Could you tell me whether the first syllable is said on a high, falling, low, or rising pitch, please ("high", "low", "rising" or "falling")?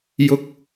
low